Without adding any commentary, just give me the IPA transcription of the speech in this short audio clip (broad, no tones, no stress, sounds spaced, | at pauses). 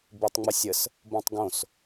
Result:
b i tˤ ŋ͡m ə sʲ ə s | b õ tˤ ɡ õ s